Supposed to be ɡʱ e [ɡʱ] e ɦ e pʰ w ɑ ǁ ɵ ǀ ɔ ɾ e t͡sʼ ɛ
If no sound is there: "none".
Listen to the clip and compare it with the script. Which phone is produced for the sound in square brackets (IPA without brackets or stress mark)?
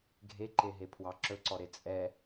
ǃ